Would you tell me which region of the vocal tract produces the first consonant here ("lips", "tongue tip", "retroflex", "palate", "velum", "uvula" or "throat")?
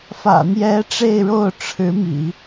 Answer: lips